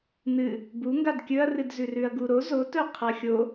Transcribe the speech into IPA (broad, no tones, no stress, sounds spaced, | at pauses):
n ɨ | b u ŋ ɡ a d kʲ ɵ ɐ̯ r ɨ d z ʉ r ʉ ɐ̯ ɡ u ɾ o z o t ɵ qʰ ɐ xʲ o